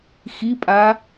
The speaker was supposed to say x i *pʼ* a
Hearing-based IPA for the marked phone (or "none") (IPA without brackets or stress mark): pʼ